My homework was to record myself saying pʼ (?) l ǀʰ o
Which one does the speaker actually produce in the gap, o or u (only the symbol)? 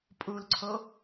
u